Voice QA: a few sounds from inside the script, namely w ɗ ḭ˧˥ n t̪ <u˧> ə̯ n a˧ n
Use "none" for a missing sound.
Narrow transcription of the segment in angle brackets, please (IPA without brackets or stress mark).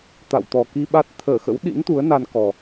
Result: u˨˦